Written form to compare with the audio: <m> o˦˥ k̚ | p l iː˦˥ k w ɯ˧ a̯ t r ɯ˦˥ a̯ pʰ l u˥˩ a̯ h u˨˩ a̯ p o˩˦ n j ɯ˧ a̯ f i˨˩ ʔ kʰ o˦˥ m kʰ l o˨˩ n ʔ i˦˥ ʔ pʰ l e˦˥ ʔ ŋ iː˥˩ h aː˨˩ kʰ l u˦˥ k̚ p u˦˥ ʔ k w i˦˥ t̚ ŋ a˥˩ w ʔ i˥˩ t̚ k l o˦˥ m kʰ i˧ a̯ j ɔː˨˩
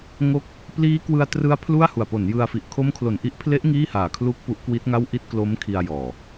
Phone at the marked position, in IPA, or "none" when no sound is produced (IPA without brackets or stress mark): ŋ